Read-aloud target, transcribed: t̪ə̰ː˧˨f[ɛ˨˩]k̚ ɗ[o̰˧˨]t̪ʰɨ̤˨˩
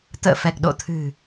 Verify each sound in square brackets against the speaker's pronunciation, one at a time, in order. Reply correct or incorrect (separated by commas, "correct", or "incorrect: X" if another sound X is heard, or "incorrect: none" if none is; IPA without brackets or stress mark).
correct, correct